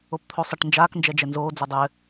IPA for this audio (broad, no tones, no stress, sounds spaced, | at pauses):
o p t̪ʰ o sˤ ɘ ʈ n d͡ʒ aː k n d͡ʒ ɛ d͡ʒ ɛ n z oː d͡z ɘ dˤ ɘː